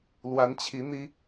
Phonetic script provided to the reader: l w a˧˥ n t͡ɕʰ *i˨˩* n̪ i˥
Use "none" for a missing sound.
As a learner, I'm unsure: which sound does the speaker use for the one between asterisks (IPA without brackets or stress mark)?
i˧˥